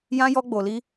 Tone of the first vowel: high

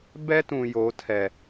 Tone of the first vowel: high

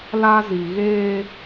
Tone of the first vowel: high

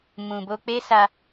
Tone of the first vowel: low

